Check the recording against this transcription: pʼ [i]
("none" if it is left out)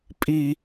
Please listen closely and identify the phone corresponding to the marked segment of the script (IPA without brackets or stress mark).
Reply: i